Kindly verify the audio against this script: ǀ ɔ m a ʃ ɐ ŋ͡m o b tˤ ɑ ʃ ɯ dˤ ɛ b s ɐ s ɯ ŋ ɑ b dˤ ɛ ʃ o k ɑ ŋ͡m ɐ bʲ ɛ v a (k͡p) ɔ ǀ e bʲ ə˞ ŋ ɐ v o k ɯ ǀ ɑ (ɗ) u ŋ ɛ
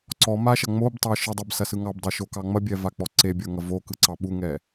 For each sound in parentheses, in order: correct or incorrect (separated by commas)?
correct, incorrect